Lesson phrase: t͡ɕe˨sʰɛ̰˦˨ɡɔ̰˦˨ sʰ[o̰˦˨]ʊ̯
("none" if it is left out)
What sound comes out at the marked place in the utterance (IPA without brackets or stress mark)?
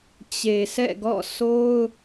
o˦